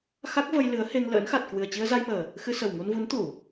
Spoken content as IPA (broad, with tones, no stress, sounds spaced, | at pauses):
x a˦˥ k̚ v ə˧ j l ɨ˨˦ ə̯ h e˧ ŋ l ə̰ː˧˥ n x a˨˩ t̚ k w ɨ˨˩ ə̯ t͡ɕ i˧ ə̯ z a˧ j m əː˨˩ | x ɨ˧ s ə˨˩ w ŋ u˧ n v u˨˦ n t̪ u˧˩˨